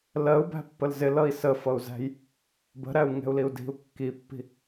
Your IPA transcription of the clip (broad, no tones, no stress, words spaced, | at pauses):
lɜu̯bæ̤pːəl zɪlʌi̯ səfʌu̯zæ̤j | bə̤ɾæu̯ŋɛ̤u̯liu̯ di̤u̯ kːipːi̤